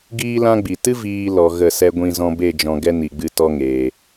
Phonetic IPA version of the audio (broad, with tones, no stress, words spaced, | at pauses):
ɡiː˦lã˦ɡ͡bi˨ tɨ˦ viː˨ lɔ˨ ɣə˦˨sɛ˦ ɡʷĩ˧ zɔ̃˧be˦˨d͡ʒɔ̃˨ ɡɛ˦ni˨ɡ͡bɨ˧ tɔ˦ŋeː˨